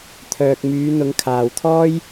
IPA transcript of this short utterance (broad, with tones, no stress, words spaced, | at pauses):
t̪ʰœː˧k̚ myː˨˧n̪ʊ˨˧ŋ kʰaː˨wt̪ʰɔː˥j